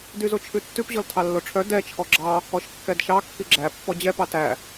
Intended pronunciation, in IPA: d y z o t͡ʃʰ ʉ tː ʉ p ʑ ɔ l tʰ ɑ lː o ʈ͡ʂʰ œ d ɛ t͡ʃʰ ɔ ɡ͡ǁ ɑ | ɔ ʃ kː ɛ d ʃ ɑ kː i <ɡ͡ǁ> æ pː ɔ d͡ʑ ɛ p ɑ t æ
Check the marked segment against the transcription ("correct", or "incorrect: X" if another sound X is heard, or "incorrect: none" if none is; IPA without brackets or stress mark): correct